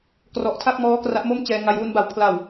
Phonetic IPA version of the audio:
k r ɔ˨˩ ʔ tʰ a˥˩ k̚ m ɔː˦˥ k r a˦˥ ʔ m o˥˩ m t͡ɕ ɛː˧ ŋ a˧ j w u˧ n b a˩˦ w pʰ l a˨˩ w

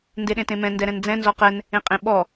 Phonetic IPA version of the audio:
n d e ɗ ẽ t ẽ m ɛ̃ n d ɛ ɾ ɛ̃ n d͡z ɛ̃ n z ɔ q ɛ n | ẽ qʼ ẽ ɓ ɔ

